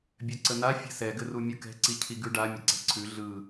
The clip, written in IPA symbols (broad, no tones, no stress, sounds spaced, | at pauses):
bʲ œ ǀ ə n a fʲ ɛ̤ s ɛ ɡ ɘ r u mʲ ɯ k ɛ̤ ǀ i cʰ i ɡ ʉ ɖ a mʲ ə ǀ ɛ̤ ǀʰ ʉ ɮ ɯ